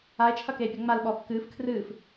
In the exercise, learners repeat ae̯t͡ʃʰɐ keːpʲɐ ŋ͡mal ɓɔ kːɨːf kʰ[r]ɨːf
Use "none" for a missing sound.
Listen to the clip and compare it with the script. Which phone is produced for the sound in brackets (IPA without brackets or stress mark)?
r